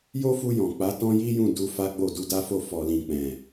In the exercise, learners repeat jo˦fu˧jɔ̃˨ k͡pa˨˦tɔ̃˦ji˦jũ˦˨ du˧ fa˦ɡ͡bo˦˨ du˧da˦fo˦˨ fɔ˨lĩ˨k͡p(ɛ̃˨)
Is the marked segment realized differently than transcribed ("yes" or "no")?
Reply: no